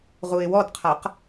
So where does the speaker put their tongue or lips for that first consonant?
uvula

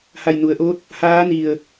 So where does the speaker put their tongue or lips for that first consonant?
throat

